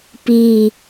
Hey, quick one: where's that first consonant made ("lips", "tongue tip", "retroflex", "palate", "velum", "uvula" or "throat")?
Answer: lips